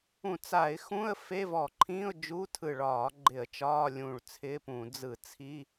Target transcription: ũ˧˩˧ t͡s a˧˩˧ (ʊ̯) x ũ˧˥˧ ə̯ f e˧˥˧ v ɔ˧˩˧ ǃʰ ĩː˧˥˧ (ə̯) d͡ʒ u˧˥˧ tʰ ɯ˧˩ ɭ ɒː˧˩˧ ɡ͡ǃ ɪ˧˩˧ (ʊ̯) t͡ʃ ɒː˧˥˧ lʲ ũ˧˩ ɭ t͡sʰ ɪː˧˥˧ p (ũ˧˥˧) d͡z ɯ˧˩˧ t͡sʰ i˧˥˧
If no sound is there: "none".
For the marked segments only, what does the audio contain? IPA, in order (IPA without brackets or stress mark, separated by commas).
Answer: ɪ̯, ʊ̯, ə̯, ũ˧˩˧